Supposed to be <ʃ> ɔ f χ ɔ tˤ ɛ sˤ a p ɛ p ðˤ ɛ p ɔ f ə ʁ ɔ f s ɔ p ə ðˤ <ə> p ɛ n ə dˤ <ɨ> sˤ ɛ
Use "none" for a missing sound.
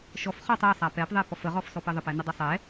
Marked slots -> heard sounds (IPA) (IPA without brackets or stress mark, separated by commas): ʃ, ə, ə